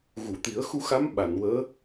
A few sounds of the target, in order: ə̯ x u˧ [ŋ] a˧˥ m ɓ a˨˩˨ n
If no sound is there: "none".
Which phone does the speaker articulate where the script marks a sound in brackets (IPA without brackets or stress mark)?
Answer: x